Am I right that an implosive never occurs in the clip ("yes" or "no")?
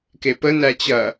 yes